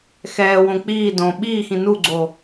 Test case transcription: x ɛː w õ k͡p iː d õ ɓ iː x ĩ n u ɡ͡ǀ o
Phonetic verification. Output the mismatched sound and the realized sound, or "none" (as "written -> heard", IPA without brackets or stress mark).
none